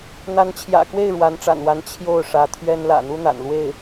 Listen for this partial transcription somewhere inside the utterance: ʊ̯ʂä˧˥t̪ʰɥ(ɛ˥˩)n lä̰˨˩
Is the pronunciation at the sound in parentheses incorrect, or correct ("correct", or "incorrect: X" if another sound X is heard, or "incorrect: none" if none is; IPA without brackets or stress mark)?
incorrect: ɛ˥